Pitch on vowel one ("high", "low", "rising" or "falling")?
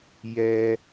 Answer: high